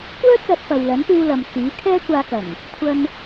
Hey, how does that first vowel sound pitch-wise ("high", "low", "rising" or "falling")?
high